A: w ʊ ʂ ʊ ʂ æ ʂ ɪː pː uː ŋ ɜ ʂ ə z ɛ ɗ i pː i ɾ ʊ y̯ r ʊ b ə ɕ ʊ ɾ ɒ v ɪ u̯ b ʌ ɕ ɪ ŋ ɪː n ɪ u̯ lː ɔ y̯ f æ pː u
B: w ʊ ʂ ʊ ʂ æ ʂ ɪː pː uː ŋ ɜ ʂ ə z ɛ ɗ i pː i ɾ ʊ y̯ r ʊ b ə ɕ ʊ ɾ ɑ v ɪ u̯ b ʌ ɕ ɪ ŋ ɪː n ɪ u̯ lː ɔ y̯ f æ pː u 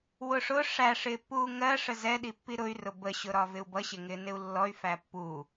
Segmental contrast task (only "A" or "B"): A